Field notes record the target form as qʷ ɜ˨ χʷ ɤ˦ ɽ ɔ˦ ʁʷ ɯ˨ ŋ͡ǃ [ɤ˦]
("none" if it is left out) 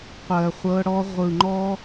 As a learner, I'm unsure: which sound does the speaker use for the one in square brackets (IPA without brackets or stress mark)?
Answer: ɔ˦